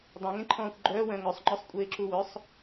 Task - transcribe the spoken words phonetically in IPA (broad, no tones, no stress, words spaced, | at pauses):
dˤẽŋẽǃʰɔ̃ːxʷ ɡ͡ǃœwœ̃ ŋœsˤŋ͡ǃœsˤkʷʼeːǁu wœsˤ